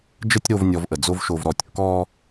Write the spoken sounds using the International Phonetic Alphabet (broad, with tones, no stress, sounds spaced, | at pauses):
d͡ʒ ə˦ tʲ ɾ o˧ v nʲ ɔ˧ v ʔ ə˨ d͡z o˦ v ʃ o˧ v ɾ ɔ˧ tʲ kː ɔː˦